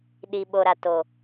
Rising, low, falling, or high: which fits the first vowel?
low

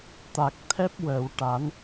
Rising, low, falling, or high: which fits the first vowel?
low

